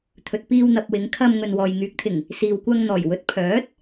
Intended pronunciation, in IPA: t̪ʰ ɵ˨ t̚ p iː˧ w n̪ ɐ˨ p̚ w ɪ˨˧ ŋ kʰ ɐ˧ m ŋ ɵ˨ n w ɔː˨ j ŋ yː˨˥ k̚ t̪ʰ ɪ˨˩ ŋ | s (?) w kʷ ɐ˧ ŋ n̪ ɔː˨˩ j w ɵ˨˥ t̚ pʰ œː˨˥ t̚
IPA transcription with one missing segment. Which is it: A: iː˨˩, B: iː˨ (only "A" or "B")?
B